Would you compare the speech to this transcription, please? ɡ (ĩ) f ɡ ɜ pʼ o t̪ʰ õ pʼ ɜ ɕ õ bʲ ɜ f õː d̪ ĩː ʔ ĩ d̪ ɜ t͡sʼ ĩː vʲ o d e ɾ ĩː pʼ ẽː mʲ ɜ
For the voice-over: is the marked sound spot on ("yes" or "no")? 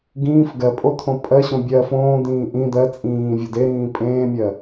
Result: no